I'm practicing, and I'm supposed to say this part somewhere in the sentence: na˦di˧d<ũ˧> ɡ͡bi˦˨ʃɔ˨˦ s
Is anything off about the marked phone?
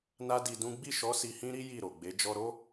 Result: yes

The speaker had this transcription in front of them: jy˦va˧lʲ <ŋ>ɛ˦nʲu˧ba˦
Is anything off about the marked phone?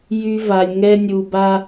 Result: no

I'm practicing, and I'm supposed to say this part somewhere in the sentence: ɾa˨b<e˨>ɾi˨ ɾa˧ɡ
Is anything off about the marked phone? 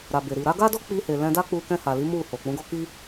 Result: no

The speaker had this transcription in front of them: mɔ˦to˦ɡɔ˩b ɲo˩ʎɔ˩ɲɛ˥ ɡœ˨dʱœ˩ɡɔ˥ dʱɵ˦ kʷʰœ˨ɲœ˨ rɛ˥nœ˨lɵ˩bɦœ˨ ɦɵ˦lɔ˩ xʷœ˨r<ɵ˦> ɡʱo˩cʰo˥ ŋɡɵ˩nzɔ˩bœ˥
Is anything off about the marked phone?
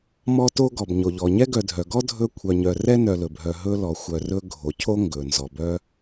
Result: yes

